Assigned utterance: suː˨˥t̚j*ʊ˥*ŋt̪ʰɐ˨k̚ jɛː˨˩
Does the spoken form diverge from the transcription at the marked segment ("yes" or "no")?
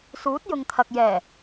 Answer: yes